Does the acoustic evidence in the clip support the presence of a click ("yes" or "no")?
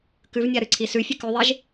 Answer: yes